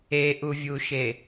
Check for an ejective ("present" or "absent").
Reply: absent